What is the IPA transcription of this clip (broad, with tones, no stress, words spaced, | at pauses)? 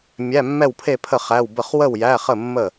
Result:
mʲæ˧˥˧mːɛ˥˨wpʰe˥˨pʰə˥˨ χæ˧˥˧w bə˥˨χ wə˥˨wjæ˧˥˧χə˥˨ mːə˥˨